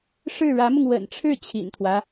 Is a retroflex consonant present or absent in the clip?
present